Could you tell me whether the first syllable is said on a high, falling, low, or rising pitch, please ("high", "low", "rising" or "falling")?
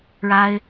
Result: high